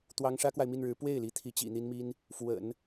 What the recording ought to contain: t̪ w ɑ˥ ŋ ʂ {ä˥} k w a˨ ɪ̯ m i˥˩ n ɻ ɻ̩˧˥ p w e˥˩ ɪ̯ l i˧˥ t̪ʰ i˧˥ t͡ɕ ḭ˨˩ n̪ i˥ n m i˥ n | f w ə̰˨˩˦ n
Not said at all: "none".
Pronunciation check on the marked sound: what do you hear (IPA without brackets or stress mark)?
ä˥